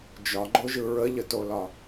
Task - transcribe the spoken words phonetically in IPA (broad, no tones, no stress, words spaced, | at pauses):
d͡ʒɒɡ͡ǃoʒɯ ɹəʎətolɒ